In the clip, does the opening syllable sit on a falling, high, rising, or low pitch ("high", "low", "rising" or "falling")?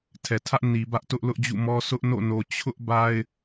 low